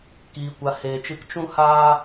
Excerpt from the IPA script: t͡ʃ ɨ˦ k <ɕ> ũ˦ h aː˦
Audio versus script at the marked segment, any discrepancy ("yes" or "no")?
yes